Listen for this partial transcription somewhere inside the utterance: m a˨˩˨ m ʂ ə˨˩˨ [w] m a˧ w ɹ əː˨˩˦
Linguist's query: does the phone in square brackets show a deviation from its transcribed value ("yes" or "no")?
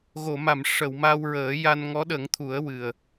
no